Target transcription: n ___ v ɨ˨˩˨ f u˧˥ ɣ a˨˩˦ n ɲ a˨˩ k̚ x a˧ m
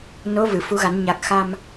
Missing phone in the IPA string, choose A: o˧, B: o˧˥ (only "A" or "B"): B